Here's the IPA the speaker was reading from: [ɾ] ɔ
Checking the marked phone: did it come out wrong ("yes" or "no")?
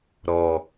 no